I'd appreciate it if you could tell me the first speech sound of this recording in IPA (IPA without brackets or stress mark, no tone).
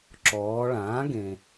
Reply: ǁ